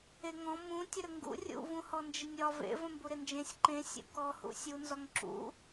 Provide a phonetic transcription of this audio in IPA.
e ŋ ɔ̃ m ũ tʲ ə ɾ ə ŋ ɡ ṵ rʲ ṵ v ũ h ɔ n d͡ʒ ɪ nʲ ɒ v ḛ v ə̃ m b u ɾ ɪ n d͡ʒ ẽ sʲ ǃ ẽ sʲ ṵ k ɔ h ṵ sʲ u n z ɒ ŋ ǁ ṵ

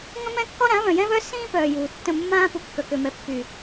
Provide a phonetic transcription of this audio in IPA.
ŋ ə̃˦ m ɛ̃˦ kː ɔ˦ ɾ ã˨˦ β œ̃˨ j ɛ̃˦ β œ˦ s ĩː˦ p œː˨ j uː˨ tː ə̃˦˨ mː ãː˦ p u˨ kː œ˨ k ø˨ m ɛ˨ pː y˨

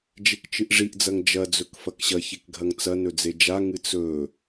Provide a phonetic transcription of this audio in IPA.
d͡ʒ e k t͡ʃ ɨ ʔ ʐ i ʔ d͡z ɐ ŋ d͡ʒ ɐ d͡z ɵ k f ɐ k ɕ ɐ ç e k ɡʱ ɐ ŋ t͡s ɐ n ɵ d͡z e d͡ʒ a ŋ ɨ t͡s ɵ

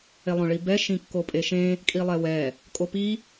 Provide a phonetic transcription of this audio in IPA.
e lˠ õ ɭ i b ɛ ʃ ĩ kː o pʼ e ʃ ẽ | kʼ i lˠ ɛ w ɛ | kʼ o p i

